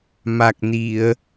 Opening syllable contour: low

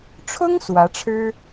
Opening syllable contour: high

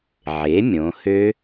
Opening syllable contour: rising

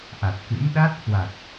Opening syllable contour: low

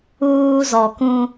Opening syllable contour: high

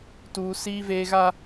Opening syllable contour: high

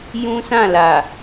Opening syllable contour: high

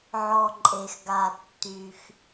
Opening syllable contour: low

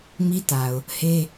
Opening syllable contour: high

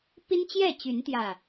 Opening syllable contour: high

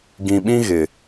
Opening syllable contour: low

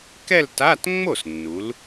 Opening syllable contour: falling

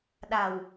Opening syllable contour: low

